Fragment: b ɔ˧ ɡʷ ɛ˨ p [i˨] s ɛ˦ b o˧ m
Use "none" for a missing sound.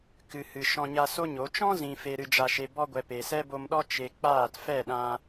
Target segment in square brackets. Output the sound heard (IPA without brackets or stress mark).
e˨